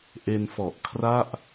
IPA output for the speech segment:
ʔe˧nfɔ˨˩ʔkʰra˥˩ʔ

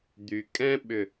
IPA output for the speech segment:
d̪y˩kʼɛ̃˥ɓʏ˧˩

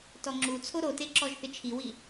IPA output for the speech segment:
tɔŋ͡ǁut͡sʰo ɾote ǁɔʒθɪt͡ʃʰiwi

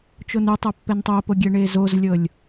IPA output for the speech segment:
t͡ʃonutˤɤ pːɛntˤopo ɡʲɛɳezozlʲɤlʲ

